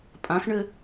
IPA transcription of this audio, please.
pʼãxɳɘ

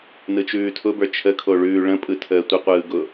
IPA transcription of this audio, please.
nɯt͡ʃʉːtʰʊbə˞ t͡ʃʰəkʰo ɭʉːɭə̃pʼɯ tʰəːtʷəqʷɯː ɡʊ

